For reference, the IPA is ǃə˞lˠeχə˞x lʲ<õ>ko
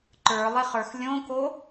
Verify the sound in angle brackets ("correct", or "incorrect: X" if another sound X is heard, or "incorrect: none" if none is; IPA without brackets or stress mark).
correct